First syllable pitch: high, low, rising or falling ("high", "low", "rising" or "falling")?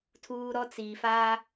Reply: high